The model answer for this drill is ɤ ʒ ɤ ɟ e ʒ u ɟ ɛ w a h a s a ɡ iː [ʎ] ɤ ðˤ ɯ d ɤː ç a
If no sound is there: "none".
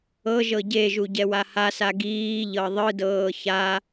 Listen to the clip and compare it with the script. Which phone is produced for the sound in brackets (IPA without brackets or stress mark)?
ʎ